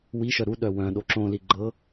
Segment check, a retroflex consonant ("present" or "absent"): absent